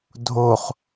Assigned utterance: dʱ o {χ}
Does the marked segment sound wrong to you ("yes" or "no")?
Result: no